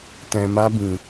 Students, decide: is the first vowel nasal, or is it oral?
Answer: nasal